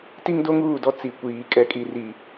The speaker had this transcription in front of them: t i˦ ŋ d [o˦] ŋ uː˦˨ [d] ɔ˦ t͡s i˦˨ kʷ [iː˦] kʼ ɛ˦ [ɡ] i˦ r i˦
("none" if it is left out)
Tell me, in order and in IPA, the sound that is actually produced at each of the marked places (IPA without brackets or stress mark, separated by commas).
o˦, d, iː˦, kʼ